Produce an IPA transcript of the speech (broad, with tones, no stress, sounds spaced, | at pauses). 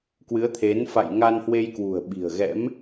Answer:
k w ɨ˨˦ ə̯ t̪ʰ e˨˦ n f a̰˧˨ j ŋ a˧ n h w e˧ j k w ṳ˨˩ ə̯ ɓ i̤˨˩ ə̯ ɣ ɛ̰˧˥ m